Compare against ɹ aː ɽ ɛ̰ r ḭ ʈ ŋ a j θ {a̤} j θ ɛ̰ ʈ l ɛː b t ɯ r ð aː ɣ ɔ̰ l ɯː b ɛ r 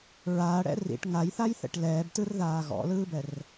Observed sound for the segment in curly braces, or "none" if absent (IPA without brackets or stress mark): a